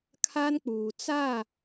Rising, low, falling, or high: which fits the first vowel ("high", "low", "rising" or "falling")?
high